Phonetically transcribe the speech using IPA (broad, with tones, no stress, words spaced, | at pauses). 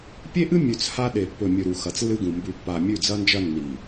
pʲe˦ʔɨ˦ mʲʉ˨t͡s ha˦ ɗe˨ pːɵ˨mʲɵ˨ɾu˨ xɐ˨t͡slːɨ˦ɡũ˨ mbʉ˨pːa˨ mʲʉ˦˨d͡zɐ˦nd͡ʒɐ˦ nːi˨